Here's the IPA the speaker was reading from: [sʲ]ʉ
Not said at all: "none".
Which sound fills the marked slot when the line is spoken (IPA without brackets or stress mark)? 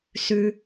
s